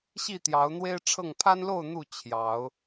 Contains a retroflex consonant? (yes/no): yes